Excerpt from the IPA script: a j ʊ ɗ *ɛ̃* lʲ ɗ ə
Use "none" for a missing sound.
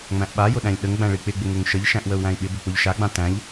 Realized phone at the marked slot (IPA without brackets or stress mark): æ̃